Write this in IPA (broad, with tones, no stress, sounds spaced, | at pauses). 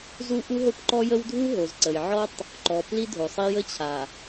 z u˦ ʔ u˦ ɦ o˦ p ǃ ɔ˦ j ə˦ w dʱ u˦ ɦ o˨ z ǀ ə˨ j ʕ ɔ˦ tˤ | ǃ ɔ˨ p l i˦ dʱ o˨ sˤ i˦ j ə˦ t͡ɕʰ a˨